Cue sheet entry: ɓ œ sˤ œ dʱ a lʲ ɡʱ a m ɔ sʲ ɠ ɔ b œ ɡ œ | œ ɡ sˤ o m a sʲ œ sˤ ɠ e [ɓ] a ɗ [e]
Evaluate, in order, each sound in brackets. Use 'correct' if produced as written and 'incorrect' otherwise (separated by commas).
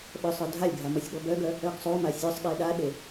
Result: incorrect, correct